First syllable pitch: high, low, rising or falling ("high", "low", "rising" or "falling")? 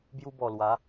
high